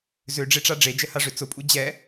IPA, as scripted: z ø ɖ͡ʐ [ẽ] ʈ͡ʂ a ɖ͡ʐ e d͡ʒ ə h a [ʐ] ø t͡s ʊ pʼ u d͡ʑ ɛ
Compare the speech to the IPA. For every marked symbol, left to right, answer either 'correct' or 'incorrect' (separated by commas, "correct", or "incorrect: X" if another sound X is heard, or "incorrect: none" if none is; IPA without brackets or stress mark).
incorrect: e, correct